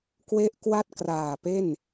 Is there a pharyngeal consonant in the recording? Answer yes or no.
no